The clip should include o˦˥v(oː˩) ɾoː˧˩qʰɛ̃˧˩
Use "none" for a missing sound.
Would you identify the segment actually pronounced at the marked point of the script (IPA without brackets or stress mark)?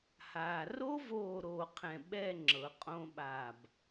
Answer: oː˧˩